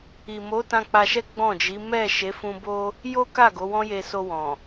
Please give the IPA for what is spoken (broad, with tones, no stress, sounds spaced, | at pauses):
i˨ m o˨˦ t ã˧ k͡p a˧ ʃ ɛ˦ ɡ͡b ɔ̃˦˨ d͡ʒ i˨˦ m ɛ˦˨ ʃ e˨˦ f ũ˧ b o˦ | j o˦ k a˦˨ ɡ o˨˦ w ɔ̃˦ j e˧ s o˧ w ɔ̃˨